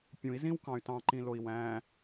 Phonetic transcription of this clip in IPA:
pʲ ũ i̯ z ĩ w k ɑ̃ y̯ t ɑ̃ ǃ ĩ l o i̯ w æ̃

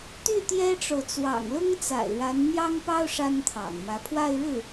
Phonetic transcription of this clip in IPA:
t̪ y˥˩ t̪ j ɛ˥ ʈ͡ʂ o˨ ʊ̯ t͡s w ɑ̰˨˩ ŋ l ʊ˥ ŋ t͡s a̰˨˩ ɪ̯ ɻ a˧˥ n n̪ j ɑ˥ ŋ p ɑ˥ ʊ̯ ʂ a˥ n t̪ʰ ɑ̰˨˩ ŋ m ä˧˥ pʰ w a˥˧ ɪ̯ ɻ ɻ̩˥˩

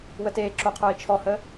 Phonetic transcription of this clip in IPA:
w ə t eː ǁ o qʰ ə˞ i̯ t͡ʃʰ ɔ h ə

